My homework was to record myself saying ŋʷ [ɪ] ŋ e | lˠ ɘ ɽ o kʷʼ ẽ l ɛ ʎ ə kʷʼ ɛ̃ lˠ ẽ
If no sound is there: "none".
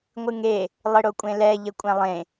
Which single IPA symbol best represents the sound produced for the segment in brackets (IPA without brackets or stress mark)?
ɨ